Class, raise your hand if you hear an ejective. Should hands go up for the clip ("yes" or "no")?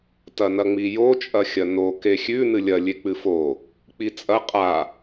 yes